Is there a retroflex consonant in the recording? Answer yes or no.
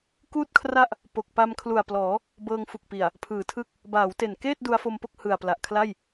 no